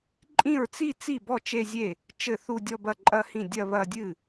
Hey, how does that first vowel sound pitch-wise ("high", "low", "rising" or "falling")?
falling